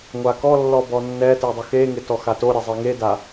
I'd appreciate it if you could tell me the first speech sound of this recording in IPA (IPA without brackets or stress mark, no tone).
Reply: ŋʷ